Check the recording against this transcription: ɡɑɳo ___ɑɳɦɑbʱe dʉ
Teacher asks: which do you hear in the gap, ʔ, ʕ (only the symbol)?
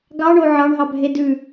ʕ